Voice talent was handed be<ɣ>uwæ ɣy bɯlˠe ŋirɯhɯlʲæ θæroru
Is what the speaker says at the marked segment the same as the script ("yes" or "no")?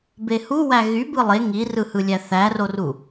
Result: no